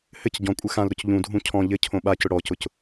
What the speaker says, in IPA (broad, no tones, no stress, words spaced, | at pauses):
hɘc ɟɔ̃kʷʼɘ xãlɾʊc ʎũdʱũ cʰɔ̃ ʎɘ cʰõɓacʊ ɽɔcʊc